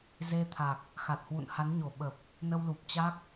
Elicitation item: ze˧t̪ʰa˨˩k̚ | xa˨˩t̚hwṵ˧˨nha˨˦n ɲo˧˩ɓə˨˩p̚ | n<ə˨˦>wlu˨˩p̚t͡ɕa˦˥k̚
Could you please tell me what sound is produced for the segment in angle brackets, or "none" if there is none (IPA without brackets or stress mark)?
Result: ə˧